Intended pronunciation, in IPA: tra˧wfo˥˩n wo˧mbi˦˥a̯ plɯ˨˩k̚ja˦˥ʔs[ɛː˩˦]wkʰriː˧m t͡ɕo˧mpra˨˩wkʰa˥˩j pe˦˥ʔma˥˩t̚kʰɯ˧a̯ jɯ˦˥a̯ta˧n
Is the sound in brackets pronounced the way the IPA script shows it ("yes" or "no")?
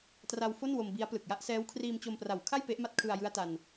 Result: no